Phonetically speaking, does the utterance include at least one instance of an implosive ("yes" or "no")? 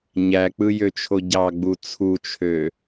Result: no